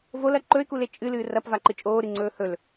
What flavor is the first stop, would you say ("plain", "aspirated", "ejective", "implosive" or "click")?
click